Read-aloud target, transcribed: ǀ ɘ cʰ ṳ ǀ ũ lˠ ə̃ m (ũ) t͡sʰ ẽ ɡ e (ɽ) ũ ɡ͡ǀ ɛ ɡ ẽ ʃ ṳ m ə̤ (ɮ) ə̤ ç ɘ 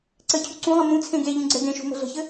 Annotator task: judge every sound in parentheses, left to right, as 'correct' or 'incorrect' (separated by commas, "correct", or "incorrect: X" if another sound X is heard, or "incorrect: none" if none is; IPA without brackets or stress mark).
correct, incorrect: ʎ, correct